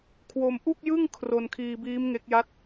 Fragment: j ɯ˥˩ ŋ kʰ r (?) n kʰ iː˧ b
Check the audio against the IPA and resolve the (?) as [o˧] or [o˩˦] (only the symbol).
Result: o˧